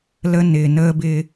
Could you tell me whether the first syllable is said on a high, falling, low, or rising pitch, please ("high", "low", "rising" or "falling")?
high